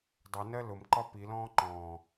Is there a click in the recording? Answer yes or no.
yes